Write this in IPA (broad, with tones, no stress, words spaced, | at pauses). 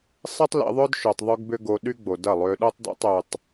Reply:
sˤi˦tˤlḭ˧ðˤœ˦d ʃø˧tˤðˤø˦ɡbʏ˦ ɡo˧ɗy˦ɡ͡bo˨ dɐ˦˨lˠø˧ɗo˦tˤ do̰˦tˤø˧tˤ